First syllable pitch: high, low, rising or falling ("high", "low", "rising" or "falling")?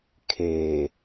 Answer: low